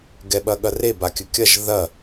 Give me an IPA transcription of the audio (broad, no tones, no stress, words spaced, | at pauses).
ɡɛɓɐɠɐre bakʲɵkʲɐʒ ðɐ